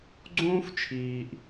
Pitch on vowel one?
high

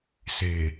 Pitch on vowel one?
low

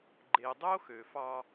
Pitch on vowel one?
low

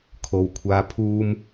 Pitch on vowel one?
low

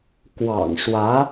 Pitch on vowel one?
low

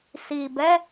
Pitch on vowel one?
low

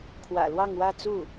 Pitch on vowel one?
low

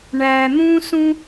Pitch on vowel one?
low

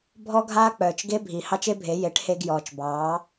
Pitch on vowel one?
high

